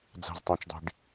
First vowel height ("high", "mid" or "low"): low